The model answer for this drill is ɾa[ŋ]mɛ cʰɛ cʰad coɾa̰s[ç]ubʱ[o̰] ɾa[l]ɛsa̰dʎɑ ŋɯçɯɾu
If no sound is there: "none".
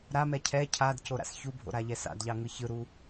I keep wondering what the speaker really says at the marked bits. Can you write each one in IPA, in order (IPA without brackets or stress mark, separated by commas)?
none, ç, o̰, ʎ